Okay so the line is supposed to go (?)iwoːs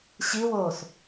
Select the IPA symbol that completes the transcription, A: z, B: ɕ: B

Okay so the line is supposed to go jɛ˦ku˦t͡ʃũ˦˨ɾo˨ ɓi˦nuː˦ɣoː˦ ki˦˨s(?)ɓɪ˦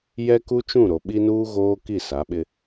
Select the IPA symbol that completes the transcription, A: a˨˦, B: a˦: A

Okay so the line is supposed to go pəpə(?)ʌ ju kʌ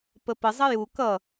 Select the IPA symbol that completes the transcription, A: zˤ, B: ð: A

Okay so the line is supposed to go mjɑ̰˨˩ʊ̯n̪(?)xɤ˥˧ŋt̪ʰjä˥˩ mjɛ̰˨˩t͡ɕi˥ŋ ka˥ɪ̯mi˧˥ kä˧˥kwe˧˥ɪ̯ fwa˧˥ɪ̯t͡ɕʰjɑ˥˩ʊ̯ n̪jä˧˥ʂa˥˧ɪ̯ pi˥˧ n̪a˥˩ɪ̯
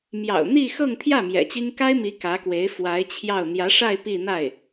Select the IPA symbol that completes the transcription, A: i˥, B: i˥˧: B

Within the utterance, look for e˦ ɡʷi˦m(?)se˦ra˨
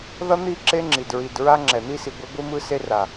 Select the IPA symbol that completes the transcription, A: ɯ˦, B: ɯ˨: A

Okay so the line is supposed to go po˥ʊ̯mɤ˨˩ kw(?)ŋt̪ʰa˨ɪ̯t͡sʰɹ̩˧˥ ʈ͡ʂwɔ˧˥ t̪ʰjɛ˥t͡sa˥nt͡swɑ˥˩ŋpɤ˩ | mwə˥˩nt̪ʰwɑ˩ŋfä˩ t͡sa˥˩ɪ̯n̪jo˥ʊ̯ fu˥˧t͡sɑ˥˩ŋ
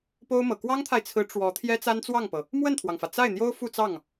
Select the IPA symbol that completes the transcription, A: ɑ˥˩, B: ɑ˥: B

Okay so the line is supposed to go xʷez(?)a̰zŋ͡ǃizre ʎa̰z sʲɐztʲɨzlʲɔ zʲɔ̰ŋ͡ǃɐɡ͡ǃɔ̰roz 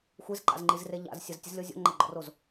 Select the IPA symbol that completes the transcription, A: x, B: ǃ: B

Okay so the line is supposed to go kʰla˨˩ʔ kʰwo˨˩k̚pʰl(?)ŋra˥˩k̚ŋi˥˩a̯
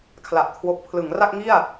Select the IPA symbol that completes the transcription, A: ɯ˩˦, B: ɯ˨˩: A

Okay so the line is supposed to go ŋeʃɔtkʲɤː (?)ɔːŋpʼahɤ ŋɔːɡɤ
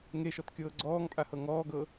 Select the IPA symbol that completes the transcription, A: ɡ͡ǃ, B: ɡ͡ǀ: B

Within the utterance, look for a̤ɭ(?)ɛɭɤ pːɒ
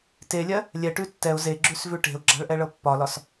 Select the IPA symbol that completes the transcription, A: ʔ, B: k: A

